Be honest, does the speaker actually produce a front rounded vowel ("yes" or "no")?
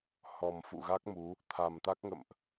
no